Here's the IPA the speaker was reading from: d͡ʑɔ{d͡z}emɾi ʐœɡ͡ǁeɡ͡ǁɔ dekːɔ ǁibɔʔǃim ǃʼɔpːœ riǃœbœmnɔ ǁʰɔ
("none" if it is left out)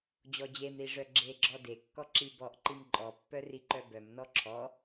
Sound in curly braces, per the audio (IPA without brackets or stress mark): d͡ʑ